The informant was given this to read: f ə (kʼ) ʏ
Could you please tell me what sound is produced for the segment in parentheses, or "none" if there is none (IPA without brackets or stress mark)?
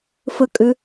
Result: kʼ